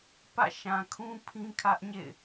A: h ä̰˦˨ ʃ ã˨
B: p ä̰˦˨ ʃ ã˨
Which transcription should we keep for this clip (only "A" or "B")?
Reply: B